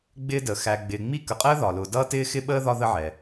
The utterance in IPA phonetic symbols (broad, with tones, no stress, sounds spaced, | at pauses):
ɡ͡b ɪː˦ d əː˩ x æ˨ ɡ͡b ɪː˨ ŋ͡m i˥ k ə˨ qʼ əː˥ ð ɒ˩ l ʊ˨ d ʌː˥ t ɪː˥ x ɪ˥ ɓ əː˥ ð ɒ˦ ð ə˦ ʕ ɛ˩